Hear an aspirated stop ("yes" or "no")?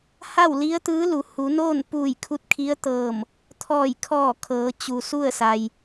yes